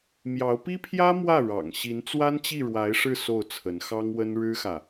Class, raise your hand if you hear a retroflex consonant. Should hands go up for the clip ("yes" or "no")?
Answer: yes